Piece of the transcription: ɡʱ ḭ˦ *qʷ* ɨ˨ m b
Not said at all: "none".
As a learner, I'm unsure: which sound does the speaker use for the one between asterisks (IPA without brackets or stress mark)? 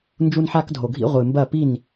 ʁʷ